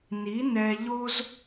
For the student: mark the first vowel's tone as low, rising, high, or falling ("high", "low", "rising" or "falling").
rising